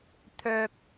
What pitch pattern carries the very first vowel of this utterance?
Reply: low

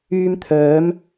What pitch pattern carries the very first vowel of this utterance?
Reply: high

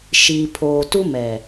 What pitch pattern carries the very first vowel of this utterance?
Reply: low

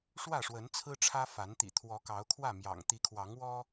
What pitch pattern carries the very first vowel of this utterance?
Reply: falling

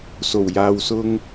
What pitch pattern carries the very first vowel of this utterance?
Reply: low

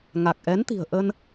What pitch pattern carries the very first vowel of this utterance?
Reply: low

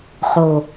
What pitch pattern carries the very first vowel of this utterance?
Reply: low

